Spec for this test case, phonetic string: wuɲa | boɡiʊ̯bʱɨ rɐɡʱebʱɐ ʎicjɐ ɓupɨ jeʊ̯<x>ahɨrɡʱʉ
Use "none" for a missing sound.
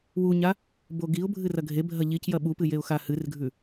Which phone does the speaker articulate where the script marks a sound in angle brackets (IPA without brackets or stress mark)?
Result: x